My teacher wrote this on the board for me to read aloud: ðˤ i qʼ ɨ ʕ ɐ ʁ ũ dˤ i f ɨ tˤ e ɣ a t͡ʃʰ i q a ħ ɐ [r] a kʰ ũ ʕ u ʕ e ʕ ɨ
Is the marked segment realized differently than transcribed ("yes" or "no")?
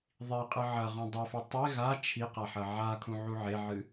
yes